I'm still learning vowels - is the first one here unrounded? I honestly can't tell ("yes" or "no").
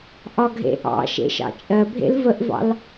no